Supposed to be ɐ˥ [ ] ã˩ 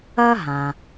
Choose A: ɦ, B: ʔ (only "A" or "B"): A